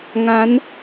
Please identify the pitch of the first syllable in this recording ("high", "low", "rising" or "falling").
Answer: rising